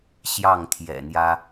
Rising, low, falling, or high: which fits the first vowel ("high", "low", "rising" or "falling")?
falling